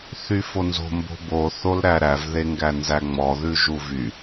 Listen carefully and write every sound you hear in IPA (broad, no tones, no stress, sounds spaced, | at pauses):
θ y f o n z o̤ m b o̤ b o θ o l ɾ æ ɾ æ v ð e ŋ ɡ æ n z æ ŋ͡m ɔ ð ʉ ʒ u v y